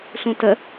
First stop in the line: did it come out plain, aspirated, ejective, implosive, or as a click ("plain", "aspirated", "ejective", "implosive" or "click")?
plain